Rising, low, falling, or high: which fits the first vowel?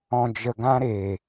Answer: low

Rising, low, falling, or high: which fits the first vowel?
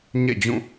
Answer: falling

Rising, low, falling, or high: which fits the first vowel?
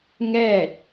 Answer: falling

